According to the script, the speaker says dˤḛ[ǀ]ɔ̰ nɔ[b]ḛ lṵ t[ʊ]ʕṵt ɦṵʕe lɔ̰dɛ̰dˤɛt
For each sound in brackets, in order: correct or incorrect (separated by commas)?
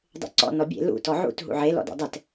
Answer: correct, incorrect, incorrect